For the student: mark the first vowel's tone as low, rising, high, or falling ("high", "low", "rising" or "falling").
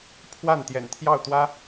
falling